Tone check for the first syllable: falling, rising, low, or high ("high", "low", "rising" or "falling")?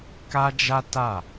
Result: high